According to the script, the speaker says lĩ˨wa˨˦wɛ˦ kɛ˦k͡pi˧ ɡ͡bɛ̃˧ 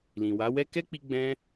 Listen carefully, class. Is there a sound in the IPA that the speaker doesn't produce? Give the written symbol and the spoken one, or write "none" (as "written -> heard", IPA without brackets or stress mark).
none